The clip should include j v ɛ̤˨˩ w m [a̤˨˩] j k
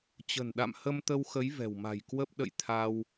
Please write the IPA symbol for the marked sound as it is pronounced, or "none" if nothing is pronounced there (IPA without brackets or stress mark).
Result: a̤˨˩